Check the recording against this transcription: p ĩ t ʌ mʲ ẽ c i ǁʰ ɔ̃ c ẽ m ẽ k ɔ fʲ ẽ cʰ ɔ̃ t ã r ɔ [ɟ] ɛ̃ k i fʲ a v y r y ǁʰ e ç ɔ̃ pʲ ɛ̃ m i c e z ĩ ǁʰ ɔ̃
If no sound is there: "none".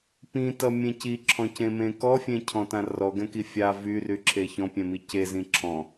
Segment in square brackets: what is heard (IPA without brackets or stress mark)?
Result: ɡ